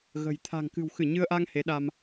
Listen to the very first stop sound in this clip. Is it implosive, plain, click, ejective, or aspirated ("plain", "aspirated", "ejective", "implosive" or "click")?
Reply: aspirated